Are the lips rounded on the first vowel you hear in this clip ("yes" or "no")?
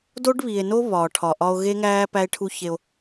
yes